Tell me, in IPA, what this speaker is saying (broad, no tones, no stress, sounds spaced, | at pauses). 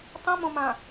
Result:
tˤ ĩ m õ m ã